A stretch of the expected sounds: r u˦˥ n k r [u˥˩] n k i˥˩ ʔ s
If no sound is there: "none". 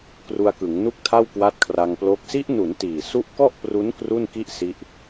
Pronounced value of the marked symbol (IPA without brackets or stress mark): u˥˩